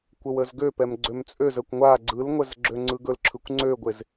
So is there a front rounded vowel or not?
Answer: yes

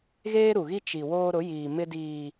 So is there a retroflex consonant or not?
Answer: no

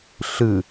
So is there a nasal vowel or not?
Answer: no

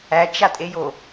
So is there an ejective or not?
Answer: yes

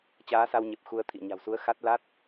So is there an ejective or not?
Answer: no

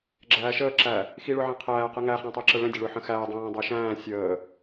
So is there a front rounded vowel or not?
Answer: no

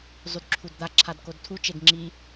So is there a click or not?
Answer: yes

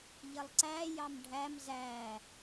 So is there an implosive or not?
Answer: no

